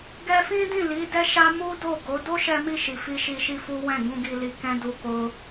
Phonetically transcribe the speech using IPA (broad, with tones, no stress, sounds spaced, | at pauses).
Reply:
ɡ ɛ˧ f ĩ˦ d ĩ˦˨ l i˨˦ d ɛ˦ ʃ a˦ m u˦ d o˦˨ ɡ o˨˦ d o˦ ʃ ɛ˧ m i˧ ʃ i˨ f i˧ ʃ i˧ ʃ i˦ f u˦ w ɛ̃˦˨ ɡ ũ˧ ɡ i˧ l i˧ k ɛ̃˦ d u˧ k o˧